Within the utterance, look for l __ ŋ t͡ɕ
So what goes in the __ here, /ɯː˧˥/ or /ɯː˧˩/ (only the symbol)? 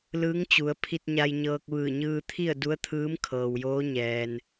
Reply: ɯː˧˥